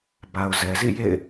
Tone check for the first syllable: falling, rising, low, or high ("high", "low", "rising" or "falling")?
low